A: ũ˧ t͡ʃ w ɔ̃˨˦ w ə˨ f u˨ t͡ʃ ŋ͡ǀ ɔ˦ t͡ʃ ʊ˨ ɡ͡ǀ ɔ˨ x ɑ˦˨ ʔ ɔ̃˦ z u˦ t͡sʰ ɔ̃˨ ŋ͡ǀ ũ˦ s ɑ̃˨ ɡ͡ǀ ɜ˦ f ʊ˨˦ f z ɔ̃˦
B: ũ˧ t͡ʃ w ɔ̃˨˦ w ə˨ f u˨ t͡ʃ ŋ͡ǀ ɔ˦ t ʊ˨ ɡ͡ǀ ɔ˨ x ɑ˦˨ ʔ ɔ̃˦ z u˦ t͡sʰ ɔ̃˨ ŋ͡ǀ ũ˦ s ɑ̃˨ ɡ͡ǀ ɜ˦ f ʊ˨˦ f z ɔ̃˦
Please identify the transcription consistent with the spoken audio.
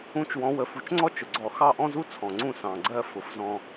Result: A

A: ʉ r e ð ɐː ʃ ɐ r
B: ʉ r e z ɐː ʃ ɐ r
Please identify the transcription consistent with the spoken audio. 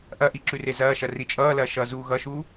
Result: B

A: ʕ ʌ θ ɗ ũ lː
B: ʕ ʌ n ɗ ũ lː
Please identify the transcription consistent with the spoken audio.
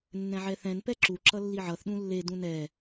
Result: A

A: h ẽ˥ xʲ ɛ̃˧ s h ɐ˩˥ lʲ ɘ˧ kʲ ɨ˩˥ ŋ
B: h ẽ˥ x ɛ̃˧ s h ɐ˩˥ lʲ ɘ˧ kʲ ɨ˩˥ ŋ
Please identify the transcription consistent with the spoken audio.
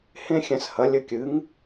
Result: A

